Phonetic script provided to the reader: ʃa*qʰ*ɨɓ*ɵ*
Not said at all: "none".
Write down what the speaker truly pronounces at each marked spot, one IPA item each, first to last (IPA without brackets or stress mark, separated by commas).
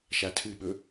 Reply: tʰ, ɵ